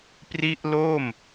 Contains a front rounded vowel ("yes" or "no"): no